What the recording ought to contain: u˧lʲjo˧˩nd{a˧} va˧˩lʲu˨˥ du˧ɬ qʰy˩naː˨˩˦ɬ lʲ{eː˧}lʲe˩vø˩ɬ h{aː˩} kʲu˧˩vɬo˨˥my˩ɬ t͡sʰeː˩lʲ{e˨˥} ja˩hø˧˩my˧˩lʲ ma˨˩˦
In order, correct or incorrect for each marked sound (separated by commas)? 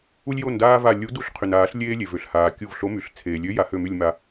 incorrect, correct, correct, incorrect